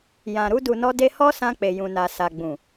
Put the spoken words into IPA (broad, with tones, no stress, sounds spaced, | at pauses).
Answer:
j ã˨ ɾ u˧ d u˨ n ɔ˧ d e˧ h ɔ˦ s ã˧ k͡p e˨ j ũ˨ n a˨ s a˨ ɡ͡b ũ˨